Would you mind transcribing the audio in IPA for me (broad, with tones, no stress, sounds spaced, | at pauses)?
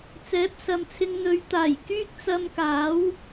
t͡s ɛː˨˥ p̚ s ɐ˨ m t͡sʰ ɪ˧ ŋ n̪ ɵ˨˧ ɥ t̪ aː˨˩ j k yː˥ k̚ t͡s ɐ˧ m k aː˨˥ w